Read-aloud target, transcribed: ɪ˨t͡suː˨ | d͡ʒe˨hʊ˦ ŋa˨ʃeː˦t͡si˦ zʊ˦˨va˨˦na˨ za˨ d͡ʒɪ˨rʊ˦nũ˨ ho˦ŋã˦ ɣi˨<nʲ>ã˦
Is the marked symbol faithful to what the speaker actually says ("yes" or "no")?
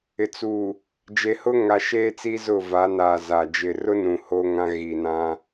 no